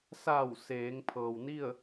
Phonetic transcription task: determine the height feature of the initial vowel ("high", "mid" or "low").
low